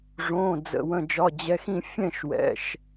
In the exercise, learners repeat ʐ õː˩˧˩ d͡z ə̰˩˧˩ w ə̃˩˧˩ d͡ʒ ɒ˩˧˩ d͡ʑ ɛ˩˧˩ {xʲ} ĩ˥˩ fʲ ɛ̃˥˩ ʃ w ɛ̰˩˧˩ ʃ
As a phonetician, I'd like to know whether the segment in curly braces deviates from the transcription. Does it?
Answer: yes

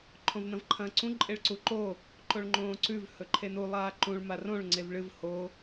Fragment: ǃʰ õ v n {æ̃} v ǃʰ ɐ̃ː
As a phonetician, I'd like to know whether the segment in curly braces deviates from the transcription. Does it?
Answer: yes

